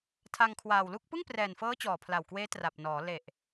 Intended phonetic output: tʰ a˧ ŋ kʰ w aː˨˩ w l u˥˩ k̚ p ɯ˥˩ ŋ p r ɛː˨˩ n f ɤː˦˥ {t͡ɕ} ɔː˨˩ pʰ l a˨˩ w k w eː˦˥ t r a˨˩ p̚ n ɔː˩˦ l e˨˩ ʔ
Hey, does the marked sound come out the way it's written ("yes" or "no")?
yes